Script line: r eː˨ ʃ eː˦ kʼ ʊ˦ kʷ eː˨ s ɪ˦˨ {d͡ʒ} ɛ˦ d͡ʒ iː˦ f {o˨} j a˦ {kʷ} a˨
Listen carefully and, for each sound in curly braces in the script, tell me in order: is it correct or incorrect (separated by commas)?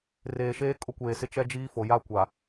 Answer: incorrect, correct, correct